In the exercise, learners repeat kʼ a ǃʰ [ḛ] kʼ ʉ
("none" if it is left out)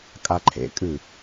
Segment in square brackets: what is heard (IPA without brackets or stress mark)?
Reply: ḛ